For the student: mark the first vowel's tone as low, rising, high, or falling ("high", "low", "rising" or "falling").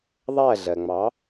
falling